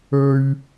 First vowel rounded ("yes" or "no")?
yes